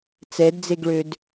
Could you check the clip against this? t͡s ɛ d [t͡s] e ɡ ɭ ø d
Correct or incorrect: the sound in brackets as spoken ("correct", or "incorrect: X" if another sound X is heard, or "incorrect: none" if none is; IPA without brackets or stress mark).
incorrect: d͡z